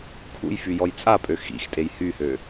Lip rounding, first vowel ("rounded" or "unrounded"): rounded